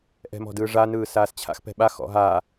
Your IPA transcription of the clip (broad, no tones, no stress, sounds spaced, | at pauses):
ʔ ɛ̤ m ɔ̤ d ɯː ʐ a n ɯː s aː s t͡ɕʰ a̰ x p ɛ̤ ɓ a x ɔ̰ ɦ a